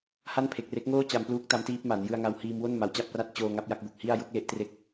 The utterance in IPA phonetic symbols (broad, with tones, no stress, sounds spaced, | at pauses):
h a˥˩ n pʰ e˨˩ k̚ r e˦˥ k̚ ŋ oː˥˩ t͡ɕ a˧ m p l uː˦˥ k̚ t a˦˥ m t iː˦˥ p̚ m a˩˦ n j ɯ˧ a̯ ŋ a˧ w h iː˧ m w o˥˩ n m a˩˦ w t͡ɕ a˦˥ p̚ r a˦˥ t̚ t͡ɕ oː˧ ŋ a˦˥ p̚ j a˥˩ k̚ b o˨˩ k̚ h i˥˩ a̯ j o˦˥ k̚ l e˦˥ ʔ t r e˦˥ k̚